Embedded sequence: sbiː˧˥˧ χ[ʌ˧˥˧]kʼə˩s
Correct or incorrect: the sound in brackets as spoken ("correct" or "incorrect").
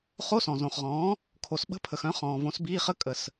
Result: incorrect